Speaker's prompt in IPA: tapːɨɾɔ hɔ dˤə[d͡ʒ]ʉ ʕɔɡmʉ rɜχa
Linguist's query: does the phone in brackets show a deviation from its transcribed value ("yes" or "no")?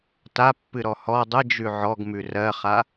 no